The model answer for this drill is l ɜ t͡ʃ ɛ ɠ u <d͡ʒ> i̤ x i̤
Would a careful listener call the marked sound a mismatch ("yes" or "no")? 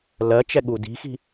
yes